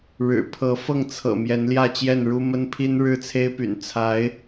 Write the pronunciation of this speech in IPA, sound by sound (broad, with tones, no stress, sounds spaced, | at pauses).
ɻ ɻ̩˨˩ pʰ ɤ˧˥ f ɤ˥˩ ŋ t͡sʰ ɤ̰˨˩ m j ɛ˧˥ n l j ä˥˧ t͡ɕ j ɛ˥˩ n ɻ u˥ m ə˥ n pʰ i˥ n ɻ ɻ̩˥˩ t͡sʰ e˥ ɪ̯ p y̰˨˩ n t͡sʰ a˧˥ ɪ̯